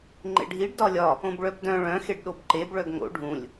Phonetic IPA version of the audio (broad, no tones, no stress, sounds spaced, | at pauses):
ŋ͡ǃ ḛ ɖʱ i ɖ d ɒ lʲ ɒ | õ b ɭ œ b d œ̃ ɭ œ̃ x e ɖ ɗ o b ǃ e b ɭ œ ɡ ŋ o̰ ɖʱ ũ lʲ